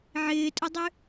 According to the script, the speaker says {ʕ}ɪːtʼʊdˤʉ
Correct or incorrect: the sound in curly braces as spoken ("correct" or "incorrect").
correct